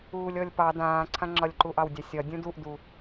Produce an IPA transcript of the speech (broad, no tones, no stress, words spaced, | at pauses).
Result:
uːlʲɔlʲpɑ dãːǀʰãŋ͡ǁɒlʲ ǃuʔɑwdʲɑsʲɒ dʲũduʔdu